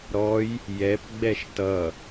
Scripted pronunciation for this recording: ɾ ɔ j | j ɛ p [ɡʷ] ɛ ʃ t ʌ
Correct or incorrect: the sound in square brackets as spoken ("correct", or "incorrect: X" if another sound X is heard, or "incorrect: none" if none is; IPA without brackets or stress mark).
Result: incorrect: ɡ͡b